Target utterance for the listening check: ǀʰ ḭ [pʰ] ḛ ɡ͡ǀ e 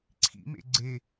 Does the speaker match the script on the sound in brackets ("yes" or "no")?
no